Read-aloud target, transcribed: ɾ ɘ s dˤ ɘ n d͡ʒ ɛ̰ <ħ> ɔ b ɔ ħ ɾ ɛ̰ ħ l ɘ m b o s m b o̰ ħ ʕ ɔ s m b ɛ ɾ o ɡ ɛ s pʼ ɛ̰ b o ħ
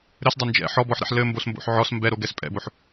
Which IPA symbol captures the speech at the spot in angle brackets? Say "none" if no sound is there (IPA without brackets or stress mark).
ħ